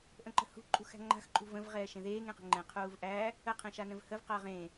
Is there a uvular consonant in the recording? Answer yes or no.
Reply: yes